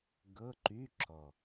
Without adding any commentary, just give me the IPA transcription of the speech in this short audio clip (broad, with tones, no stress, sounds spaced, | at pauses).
ɡ ɤ˧˥˧ ǃ y˧˥˧ ǁ ɔ˨˩